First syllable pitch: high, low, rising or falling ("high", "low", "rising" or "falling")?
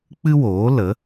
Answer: high